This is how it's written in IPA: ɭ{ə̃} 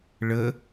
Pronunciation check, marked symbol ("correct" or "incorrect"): incorrect